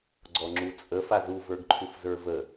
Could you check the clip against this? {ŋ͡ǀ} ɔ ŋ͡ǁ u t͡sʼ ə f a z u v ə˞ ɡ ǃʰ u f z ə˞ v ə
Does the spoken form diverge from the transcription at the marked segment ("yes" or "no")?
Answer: yes